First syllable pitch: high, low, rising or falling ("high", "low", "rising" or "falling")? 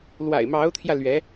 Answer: low